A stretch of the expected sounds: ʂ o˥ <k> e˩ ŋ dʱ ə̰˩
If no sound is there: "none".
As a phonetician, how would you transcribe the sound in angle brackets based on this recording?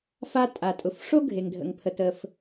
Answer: ɡʱ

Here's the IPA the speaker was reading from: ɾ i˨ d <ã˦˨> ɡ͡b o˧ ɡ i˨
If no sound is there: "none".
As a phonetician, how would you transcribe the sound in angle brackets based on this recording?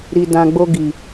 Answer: ã˨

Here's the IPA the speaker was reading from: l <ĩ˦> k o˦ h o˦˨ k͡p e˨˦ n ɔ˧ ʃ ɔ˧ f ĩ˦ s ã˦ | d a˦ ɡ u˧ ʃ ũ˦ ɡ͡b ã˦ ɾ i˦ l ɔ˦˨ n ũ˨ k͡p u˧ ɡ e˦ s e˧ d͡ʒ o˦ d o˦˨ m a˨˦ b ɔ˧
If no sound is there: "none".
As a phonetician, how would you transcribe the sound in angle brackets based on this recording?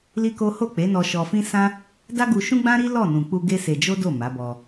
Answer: i˦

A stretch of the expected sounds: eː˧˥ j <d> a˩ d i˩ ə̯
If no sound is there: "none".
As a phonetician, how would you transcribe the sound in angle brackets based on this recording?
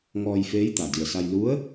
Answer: t̪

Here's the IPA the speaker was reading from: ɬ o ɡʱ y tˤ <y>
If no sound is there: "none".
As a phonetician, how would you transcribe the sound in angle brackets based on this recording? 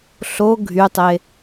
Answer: e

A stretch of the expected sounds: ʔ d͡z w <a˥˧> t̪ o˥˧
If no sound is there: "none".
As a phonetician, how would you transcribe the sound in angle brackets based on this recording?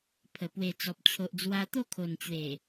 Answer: a˧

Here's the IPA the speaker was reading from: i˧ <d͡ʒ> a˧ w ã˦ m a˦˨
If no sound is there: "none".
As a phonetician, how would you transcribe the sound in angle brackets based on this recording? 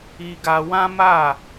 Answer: ɡ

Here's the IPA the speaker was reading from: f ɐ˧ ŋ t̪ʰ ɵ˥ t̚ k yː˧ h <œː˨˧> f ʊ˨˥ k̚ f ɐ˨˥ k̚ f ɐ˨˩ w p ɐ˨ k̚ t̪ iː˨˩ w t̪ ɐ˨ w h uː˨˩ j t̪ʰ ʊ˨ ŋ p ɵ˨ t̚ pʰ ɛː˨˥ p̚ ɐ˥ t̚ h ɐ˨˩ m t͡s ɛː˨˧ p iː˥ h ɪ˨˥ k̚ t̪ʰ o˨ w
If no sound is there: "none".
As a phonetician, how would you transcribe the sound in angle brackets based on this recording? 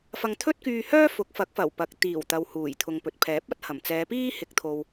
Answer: œː˥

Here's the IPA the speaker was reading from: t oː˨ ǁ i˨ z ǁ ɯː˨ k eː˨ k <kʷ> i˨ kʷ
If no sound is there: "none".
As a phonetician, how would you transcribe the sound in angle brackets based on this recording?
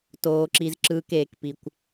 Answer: p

